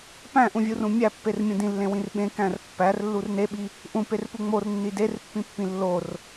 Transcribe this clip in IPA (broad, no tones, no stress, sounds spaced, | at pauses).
p æ̃ ʔ ũ vʲ u r ũ mʲ æ pː e r mʲ ũ d ĩ lː ẽ w ĩ r ɓ ẽ k æ̃ r pː æ r lː u r n e ɓ i | ʔ ũ p e r p u ŋ͡m o r nː i d e r pː ĩ pː ĩ lː o r